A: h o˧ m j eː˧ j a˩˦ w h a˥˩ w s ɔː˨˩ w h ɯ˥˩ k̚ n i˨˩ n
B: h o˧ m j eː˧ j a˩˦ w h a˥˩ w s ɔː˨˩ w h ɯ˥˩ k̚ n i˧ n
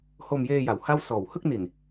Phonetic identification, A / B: A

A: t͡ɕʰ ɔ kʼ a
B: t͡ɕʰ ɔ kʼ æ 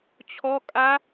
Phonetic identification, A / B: A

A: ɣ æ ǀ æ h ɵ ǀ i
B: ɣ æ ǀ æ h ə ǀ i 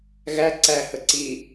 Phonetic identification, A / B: B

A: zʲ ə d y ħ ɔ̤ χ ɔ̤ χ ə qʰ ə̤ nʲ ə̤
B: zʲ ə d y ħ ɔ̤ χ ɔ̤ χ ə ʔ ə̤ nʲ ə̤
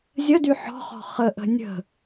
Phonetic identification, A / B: B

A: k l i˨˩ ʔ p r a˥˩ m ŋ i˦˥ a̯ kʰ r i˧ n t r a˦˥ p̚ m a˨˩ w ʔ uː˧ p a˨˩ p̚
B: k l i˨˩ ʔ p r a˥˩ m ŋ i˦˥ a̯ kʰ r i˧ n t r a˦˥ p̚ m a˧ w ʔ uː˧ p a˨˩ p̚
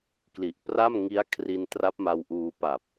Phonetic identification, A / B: B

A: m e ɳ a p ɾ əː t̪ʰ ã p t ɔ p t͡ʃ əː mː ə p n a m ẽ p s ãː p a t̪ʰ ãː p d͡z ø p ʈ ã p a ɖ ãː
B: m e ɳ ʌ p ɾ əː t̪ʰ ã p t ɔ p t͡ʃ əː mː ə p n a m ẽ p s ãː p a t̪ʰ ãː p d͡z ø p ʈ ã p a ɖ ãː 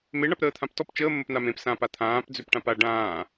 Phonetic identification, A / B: A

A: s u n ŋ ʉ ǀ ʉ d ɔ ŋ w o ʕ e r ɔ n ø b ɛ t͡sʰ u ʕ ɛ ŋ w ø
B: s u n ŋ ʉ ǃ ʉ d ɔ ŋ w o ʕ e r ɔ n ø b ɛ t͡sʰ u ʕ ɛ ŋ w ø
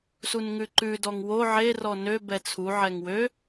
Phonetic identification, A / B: B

